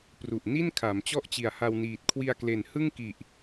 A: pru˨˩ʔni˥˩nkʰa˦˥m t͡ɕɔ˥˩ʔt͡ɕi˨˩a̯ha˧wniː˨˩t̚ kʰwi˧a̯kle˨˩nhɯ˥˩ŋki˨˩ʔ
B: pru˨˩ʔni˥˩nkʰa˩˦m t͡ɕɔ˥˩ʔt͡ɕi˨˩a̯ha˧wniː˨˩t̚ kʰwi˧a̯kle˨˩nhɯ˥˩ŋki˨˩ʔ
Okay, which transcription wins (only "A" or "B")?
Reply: B